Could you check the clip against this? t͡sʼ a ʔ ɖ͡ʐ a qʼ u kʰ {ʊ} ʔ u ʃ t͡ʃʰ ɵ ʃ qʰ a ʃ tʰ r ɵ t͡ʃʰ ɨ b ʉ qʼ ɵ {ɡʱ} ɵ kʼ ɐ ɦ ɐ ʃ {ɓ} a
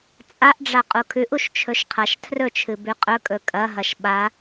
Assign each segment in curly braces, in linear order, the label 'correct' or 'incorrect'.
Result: incorrect, incorrect, correct

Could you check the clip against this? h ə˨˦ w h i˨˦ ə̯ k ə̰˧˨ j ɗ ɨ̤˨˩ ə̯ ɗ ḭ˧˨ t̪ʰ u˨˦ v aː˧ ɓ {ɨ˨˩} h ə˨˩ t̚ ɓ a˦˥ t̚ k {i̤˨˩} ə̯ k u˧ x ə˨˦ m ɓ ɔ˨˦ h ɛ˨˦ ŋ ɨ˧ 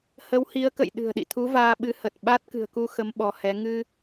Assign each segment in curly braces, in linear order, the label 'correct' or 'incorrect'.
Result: incorrect, incorrect

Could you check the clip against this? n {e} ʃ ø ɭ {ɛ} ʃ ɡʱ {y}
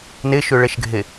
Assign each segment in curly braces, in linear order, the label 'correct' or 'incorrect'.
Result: correct, correct, incorrect

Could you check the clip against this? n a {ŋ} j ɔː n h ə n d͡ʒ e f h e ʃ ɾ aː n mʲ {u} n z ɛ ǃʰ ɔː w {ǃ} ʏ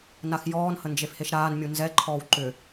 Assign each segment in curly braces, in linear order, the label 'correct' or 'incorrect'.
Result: incorrect, correct, correct

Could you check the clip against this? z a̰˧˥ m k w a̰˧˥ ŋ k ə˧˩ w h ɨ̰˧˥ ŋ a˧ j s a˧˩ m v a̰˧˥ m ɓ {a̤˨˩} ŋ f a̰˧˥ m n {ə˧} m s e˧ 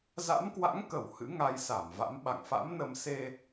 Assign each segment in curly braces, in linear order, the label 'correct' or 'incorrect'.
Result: incorrect, correct

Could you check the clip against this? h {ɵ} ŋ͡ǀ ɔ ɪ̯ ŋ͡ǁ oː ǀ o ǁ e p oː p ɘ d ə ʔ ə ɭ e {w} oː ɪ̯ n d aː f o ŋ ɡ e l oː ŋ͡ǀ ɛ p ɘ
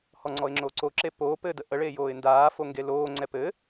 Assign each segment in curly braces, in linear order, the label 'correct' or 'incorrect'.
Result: incorrect, incorrect

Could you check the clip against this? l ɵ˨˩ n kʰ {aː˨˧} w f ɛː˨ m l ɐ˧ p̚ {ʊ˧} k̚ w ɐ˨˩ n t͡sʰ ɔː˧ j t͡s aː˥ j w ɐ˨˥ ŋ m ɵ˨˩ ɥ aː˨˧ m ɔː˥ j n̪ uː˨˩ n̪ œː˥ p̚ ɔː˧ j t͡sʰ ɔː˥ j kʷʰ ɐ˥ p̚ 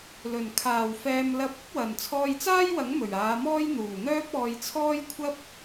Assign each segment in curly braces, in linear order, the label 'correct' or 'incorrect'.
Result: incorrect, incorrect

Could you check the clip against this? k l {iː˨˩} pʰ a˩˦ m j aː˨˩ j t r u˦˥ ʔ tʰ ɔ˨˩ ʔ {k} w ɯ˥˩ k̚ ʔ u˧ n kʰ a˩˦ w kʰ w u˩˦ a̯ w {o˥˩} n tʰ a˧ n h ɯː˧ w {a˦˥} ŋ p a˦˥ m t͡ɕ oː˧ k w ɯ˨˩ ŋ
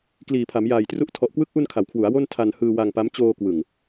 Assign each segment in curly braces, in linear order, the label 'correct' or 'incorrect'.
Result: correct, correct, correct, incorrect

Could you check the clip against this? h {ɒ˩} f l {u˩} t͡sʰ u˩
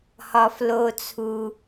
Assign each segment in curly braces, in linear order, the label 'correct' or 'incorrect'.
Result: correct, incorrect

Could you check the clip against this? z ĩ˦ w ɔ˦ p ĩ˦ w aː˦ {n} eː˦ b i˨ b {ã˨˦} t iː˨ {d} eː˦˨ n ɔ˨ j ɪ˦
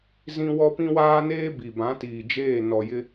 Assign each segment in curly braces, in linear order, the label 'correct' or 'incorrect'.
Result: correct, correct, incorrect

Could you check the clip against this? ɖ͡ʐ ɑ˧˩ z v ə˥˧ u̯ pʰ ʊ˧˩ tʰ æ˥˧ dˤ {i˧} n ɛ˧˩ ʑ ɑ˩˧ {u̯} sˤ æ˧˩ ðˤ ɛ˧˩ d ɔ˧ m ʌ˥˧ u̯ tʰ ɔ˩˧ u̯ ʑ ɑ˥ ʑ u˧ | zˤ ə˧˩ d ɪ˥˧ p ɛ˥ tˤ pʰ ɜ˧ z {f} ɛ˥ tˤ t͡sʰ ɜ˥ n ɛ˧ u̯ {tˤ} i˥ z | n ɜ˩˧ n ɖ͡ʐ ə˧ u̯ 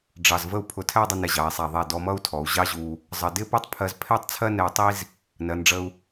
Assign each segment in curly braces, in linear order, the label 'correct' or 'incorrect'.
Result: incorrect, incorrect, incorrect, correct

